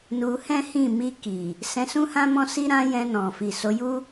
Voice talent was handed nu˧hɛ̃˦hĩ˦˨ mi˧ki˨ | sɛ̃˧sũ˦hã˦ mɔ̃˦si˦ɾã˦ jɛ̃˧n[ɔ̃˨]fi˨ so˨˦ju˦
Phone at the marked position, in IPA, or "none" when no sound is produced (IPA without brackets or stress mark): ɔ̃˨